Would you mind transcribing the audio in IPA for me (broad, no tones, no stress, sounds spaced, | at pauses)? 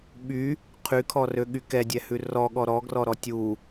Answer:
ɓ y | qʰ y kʰ ɔ r ø ɠ y k ɛ dʲ ɛ h ʉ r ɔ ɠ ɔ ɾ ɔ ɡ r ɔ ɾ ɔ tʲ u